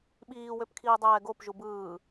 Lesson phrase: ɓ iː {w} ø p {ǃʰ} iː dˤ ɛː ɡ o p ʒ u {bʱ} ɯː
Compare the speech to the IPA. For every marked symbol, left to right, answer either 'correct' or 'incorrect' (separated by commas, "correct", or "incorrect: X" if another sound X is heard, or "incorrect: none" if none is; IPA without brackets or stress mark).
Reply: correct, incorrect: kʰ, incorrect: b